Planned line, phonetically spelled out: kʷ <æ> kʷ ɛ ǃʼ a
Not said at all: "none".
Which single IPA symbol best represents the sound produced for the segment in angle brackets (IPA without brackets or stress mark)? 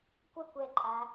ə